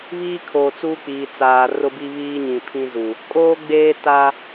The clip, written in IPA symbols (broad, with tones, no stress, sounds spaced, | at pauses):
β iː˦ kʰ oː˨ t͡s uː˦ k͡p iː˨ t͡s aː˨ r ʊ˦ b i˦ β iː˦ ɲ ĩ˨ pʰ ĩ˦ z u˨ | kʼ oː˦ ɡ͡b eː˦ t a˦